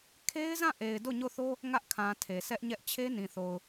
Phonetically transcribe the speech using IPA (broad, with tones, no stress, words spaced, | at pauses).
kʰe˦ɪ̯zã˦˨ʔe˨ɪ̯ do˦˨ɲo˦˨θo˦ | ŋä˦ʔkʰã˨ tʰe˨sɛ˦ʔɲɛ˦ʔ t͡ɕʰe˦nĩ˨θo˨ʊ̯